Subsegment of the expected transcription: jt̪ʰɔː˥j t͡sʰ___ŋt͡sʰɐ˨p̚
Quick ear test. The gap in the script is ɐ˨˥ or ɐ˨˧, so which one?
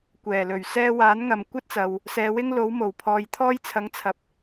ɐ˨˥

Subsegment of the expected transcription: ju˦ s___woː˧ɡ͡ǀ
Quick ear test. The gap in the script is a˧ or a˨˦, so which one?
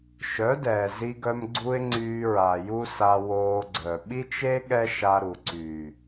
a˧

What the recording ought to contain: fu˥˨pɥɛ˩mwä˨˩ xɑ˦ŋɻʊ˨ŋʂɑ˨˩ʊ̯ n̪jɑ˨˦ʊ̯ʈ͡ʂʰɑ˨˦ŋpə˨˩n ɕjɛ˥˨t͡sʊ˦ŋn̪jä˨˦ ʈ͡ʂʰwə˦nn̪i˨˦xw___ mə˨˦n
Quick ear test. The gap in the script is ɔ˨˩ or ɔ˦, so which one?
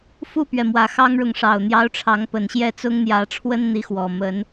ɔ˨˩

